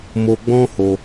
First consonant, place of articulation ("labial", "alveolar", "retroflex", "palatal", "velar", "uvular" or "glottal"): labial